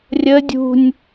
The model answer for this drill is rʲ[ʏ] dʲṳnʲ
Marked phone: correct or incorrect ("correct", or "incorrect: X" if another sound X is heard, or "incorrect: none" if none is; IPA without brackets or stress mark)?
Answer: incorrect: ə